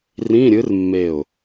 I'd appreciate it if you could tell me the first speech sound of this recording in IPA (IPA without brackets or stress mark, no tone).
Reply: r